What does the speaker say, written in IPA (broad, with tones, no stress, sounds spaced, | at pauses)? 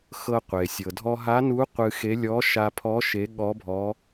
x ɤ˧ qʷ e˩ sʲ ɤ˩ dʱ ɔ˧ ɦ a˧˥ n u˧˥ qʷ ɨ˧ x e˧˥ lʲ ɔ˧˥ ʃ a˧ pʰ ɔ˧˥ ʃ e˧˥ ɠ ɔ˧˥ bʱ ɔ˧˥